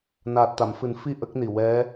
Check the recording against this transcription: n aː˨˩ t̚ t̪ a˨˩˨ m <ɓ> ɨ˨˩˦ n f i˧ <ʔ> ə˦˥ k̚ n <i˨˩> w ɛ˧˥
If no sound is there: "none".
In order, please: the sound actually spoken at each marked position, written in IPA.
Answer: f, ʔ, i˨˩

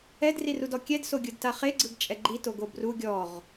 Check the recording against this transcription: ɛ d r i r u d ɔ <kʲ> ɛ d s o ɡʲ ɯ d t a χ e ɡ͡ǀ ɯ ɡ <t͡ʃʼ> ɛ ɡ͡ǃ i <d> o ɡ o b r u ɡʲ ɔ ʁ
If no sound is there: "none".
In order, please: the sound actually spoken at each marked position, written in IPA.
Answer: kʲ, t͡ʃʼ, t

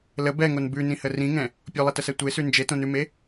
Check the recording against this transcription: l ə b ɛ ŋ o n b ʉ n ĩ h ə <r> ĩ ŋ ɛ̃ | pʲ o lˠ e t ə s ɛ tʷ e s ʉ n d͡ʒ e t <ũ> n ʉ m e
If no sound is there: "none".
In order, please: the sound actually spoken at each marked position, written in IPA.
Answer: r, õ

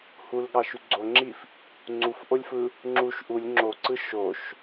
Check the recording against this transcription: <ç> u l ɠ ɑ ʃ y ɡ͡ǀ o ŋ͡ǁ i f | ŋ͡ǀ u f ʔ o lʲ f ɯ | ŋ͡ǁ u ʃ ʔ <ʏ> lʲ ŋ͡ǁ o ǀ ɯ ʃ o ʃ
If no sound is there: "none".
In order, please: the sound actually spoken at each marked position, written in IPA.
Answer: h, u

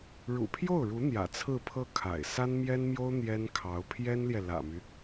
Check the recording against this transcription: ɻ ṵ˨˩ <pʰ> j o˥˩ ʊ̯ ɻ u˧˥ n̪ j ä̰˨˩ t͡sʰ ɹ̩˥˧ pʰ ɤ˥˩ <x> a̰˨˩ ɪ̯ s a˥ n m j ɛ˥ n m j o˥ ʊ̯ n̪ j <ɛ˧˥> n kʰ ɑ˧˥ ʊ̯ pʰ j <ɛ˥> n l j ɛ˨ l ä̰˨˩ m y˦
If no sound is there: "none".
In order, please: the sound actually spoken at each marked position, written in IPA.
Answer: pʰ, kʰ, ɛ˥, ɛ˥

